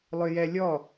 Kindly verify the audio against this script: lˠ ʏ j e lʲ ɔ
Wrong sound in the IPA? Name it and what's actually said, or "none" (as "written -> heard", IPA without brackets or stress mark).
e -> ɛ